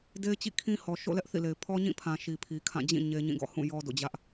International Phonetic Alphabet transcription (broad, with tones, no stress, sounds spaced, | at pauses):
d e˦ ɪ̯ t͡ɕ ḭ˦˨ kʰ ĩ˦ h ɔ˨ ʃ o̰˦˨ l ɛ˦ ʔ θ ḭ˦˨ l e˨ ɪ̯ pʰ ɔ˦ ɲ ĩ˦˨ pʰ ã˨ ʃ i˨ pʰ i˨ kʰ ã˦˨ d͡ʑ ĩ˦˨ ɲ e˦ ɲ ĩ˦˨ ɡ ɔ̰˦˨ h ũ˦˨ j ɔ˦ d o̰˦˨ d͡ʑ ä˦ ʔ